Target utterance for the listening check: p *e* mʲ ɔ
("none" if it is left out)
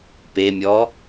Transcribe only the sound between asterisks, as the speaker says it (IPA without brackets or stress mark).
e